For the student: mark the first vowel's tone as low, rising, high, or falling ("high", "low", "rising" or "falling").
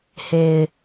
low